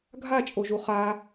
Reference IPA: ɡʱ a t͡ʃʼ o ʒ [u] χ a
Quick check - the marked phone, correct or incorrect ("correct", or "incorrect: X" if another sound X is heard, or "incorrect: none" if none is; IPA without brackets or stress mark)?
correct